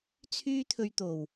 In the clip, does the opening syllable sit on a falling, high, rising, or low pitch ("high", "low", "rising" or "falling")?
high